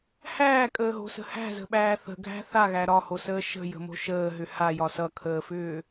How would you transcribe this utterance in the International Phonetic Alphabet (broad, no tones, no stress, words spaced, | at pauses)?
hæːkʼəːɦo̤sə̤ hæ̤zə̤ɓæː θə̤ɡʱæ̤ θaɣæ ɾɒhosəː ʃə̤jə̤mo̤ ʃəːɦʏ hajɒ sʌkʰəːfʏː